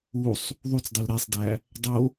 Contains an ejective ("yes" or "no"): no